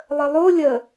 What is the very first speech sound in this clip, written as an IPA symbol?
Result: lˠ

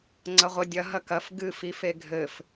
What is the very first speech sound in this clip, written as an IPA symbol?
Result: ŋ͡ǀ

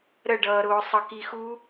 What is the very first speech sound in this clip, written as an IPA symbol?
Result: ɾ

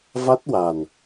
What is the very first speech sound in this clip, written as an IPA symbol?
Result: v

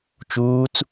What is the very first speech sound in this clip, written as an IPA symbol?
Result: t͡ʃ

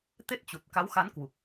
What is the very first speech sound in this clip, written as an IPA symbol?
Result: t̪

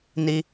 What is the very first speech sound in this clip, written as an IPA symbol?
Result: n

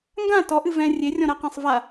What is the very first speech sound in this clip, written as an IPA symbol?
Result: ŋ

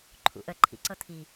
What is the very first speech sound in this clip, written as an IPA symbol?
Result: ǃʰ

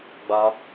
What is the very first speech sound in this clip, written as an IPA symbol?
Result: ɡ͡b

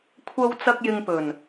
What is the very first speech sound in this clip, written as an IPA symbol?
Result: kʷʰ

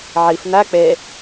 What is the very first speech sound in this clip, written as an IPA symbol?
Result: ʕ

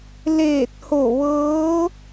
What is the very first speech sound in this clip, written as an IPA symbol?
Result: l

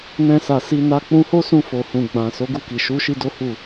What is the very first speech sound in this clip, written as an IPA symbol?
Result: n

